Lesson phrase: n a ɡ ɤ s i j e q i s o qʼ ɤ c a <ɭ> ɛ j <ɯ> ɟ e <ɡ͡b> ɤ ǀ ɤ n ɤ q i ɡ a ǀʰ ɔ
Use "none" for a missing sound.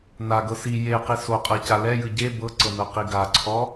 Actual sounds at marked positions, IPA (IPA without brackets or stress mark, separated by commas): l, ɯ, b